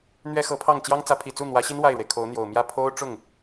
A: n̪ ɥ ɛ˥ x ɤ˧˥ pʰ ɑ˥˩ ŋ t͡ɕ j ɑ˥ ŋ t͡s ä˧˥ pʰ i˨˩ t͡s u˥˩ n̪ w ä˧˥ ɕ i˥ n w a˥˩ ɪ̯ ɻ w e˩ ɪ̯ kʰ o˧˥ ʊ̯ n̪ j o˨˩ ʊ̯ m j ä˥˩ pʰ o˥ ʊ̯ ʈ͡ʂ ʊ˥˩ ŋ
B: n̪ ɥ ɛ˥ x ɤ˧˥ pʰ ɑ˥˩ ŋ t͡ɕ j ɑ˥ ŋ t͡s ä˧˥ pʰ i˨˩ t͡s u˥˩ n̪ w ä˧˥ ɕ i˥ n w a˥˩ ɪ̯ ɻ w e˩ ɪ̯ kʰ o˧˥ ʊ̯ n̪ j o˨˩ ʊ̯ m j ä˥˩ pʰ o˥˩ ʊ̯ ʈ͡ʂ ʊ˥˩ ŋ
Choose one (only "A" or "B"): A